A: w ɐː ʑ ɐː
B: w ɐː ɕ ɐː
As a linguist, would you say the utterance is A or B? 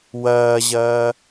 A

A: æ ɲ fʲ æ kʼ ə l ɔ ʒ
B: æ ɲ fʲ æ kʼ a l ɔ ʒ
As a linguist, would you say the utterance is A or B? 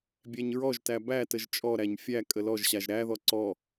A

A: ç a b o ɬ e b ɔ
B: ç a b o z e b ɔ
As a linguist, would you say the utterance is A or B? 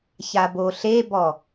A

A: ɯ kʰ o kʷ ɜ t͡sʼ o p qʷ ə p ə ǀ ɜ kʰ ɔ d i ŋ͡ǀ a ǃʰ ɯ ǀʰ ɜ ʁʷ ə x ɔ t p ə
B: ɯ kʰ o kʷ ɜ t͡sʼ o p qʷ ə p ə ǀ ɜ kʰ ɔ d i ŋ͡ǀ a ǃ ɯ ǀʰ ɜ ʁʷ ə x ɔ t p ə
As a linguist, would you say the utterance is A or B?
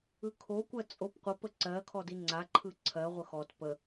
A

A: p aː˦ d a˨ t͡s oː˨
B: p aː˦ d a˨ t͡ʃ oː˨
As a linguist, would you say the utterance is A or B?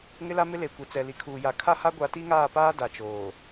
B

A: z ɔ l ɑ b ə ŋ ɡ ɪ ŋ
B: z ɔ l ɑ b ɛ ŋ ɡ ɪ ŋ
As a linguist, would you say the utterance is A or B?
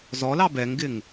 B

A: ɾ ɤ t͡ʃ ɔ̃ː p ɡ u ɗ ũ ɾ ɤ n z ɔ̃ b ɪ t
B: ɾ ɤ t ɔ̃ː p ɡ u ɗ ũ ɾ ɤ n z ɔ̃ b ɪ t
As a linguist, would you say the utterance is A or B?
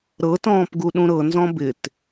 B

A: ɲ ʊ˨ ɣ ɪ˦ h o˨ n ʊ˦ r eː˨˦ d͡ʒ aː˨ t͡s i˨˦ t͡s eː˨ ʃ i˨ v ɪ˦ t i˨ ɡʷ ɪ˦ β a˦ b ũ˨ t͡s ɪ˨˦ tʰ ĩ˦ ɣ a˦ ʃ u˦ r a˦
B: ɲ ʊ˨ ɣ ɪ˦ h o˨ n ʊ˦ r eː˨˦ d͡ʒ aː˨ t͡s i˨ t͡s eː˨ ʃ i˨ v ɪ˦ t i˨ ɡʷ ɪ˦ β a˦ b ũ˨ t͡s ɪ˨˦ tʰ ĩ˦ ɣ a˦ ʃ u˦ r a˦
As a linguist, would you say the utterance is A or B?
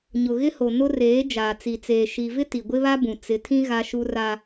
B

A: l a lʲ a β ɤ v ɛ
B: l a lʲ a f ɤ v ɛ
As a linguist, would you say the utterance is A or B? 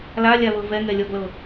A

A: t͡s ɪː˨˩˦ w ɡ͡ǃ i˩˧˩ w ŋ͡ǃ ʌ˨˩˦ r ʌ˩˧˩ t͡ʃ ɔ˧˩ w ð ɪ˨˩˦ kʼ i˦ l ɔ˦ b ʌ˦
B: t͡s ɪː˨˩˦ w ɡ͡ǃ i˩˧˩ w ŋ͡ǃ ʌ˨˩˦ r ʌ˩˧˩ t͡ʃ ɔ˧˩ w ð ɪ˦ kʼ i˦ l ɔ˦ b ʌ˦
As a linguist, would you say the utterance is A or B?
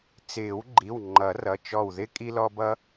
B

